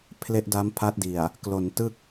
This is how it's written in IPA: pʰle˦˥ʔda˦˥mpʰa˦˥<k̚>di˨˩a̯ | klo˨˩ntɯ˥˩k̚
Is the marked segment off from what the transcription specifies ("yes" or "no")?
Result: yes